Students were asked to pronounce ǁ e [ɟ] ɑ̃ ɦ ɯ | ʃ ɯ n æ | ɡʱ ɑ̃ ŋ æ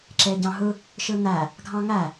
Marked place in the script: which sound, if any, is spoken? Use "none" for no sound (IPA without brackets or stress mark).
ɟ